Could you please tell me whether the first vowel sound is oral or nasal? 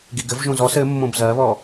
oral